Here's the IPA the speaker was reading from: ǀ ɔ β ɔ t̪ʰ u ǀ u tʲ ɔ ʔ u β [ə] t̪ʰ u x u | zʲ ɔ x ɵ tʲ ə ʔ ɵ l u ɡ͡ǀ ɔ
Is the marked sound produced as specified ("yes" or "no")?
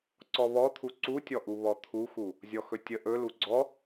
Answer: no